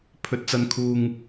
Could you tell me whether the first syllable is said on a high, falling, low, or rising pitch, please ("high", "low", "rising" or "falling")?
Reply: low